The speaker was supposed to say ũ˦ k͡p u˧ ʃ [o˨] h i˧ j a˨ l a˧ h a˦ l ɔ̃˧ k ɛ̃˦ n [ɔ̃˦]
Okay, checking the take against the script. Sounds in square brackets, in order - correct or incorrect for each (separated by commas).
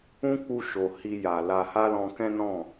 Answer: correct, incorrect